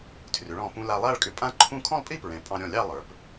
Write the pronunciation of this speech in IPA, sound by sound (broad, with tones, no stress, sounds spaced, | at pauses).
tʰ r ʏ˩˧ ɭ ɔ̃˧˩ p ũ˧ l a˧ lˠ a˥˧ ɭ kʼ ʏ˧ pʼ ã˥ ǃʰ ũ˥˧ kʰ ɔ̃˥˧ lˠ pʼ i˥˧ p ɹ ɛ̃˩˧ pʼ ɑ̃˧ ɾʲ ɔ̃˧˩ lʲ ɑ˥˧ lˠ ə˞˩˧ p